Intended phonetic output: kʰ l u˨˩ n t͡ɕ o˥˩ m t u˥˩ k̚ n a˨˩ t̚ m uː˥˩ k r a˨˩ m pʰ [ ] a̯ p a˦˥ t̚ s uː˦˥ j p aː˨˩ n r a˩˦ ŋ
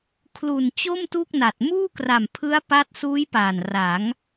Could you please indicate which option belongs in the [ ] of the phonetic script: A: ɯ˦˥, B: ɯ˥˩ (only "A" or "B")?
A